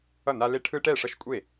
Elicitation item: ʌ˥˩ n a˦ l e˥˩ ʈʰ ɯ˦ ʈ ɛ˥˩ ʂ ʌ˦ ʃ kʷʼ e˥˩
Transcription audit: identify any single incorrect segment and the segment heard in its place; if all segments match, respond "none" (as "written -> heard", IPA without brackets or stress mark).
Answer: none